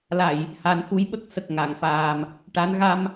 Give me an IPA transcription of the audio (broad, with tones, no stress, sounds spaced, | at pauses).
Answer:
l a˨˩˨ j | h a˨˩˦ n x u˧˥ j ɓ ə˦˥ k̚ s ə˨˩ k̚ ŋ a˨˩˨ ŋ f aː˨˩ m | ʈ a˧˥ n ɣ a˧ m